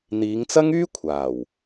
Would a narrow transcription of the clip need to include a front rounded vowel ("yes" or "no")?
yes